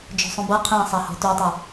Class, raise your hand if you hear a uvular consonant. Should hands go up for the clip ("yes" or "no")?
yes